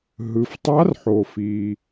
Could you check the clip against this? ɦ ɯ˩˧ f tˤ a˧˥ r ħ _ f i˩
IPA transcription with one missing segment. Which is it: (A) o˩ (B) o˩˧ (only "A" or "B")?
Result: A